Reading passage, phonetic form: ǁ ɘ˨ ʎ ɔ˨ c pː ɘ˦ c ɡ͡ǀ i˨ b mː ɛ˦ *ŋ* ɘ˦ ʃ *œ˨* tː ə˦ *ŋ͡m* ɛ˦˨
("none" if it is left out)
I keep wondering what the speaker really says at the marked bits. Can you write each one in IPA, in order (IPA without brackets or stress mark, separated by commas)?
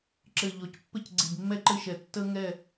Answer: ǃ, ɛ˨, ŋ